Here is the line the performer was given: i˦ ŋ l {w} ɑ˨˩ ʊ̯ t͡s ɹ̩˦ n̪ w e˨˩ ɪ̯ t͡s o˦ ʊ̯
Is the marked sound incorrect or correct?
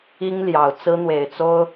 incorrect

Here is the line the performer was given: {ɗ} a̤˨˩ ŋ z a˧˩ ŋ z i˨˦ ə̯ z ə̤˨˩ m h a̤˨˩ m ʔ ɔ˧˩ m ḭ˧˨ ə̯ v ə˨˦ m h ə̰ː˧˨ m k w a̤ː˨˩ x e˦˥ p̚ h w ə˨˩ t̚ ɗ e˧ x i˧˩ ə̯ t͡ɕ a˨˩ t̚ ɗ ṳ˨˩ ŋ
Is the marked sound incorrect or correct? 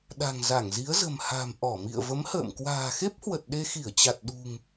correct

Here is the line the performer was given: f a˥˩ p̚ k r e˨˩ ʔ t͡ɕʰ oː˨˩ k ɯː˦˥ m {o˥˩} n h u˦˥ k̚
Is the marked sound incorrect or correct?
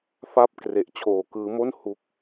correct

